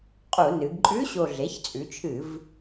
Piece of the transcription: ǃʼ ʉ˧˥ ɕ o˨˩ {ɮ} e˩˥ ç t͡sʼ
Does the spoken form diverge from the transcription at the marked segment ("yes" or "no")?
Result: no